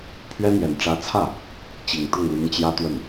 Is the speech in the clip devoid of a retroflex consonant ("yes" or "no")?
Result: no